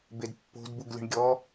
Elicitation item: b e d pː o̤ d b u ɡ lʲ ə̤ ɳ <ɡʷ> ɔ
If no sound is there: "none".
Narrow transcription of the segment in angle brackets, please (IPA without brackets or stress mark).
ɡʲ